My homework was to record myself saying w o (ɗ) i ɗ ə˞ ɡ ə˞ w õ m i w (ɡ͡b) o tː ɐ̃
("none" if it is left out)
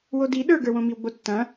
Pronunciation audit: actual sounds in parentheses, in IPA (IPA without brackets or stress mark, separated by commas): d, ɡ͡b